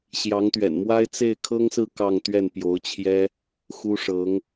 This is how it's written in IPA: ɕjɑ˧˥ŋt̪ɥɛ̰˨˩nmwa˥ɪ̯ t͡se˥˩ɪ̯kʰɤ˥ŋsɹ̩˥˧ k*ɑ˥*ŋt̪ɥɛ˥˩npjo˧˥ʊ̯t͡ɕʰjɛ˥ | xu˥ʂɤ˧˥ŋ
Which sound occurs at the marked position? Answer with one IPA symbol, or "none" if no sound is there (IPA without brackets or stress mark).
ɑ˥˧